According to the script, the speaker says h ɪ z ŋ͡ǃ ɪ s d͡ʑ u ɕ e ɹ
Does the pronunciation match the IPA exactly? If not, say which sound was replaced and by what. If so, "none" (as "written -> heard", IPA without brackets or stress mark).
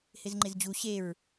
s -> z